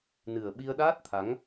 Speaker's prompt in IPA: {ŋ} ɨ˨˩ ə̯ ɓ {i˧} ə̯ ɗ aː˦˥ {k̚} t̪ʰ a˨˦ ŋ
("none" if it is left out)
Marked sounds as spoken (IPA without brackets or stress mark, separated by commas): n, i˧, t̚